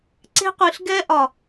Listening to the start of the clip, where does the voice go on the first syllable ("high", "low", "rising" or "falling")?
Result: high